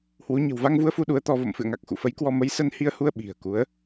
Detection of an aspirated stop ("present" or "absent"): absent